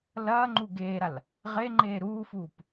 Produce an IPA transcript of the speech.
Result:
lɐːŋ͡ǃu ɡeːɾal | ʁeŋ͡ǃeː ɾuːfuːp

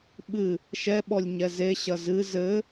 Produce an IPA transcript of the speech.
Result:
ɓɨ | ʃɛɓɔlʲ ɲɛzeɕɐ zɨ zɘ

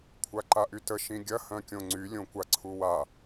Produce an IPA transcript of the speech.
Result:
kʷʰaǃaʔytə ʃĩɡʲɐ hœ̃kʲõŋ͡ǀy lʲõkʷaǀʰuwa

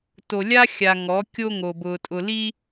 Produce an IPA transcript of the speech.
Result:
to˨lʲa˦ xʲa˨ ŋɔ˨˦kʲo˦ŋo˨bʊ˨ tʼʊ˨li˦

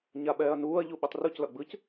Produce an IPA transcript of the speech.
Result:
ɲaɓɛːɐ̯nuːɐ̯ ʎuɓitˤruc lʌɡ͡bɯc

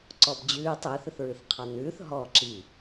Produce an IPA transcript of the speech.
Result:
ǀɔbd͡ʑʉːtˤ ʏːθʏθɹɨθqʰɑn ʉːθ ɦɔ ǁi

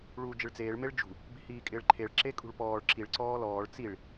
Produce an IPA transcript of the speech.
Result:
ɭuːd͡ʒɪɭt͡seːɭ meɭd͡ʒṳ | bi̤hiːkʼɪːɭǃʰeɭ ǁekʼṳɭpɔːɭ ǁiɭ ǀɔːlɔːɭ t͡siɭ

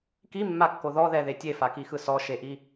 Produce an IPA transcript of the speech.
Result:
kimːakːo ðɔðɛðe tʲefakixɯ sɔʃeʔi

